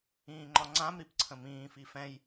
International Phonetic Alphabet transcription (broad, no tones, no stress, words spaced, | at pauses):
ĩːŋ͡ǃɒŋ͡ǀãmɾip ǀʰə̃mĩːfi fɛ̃j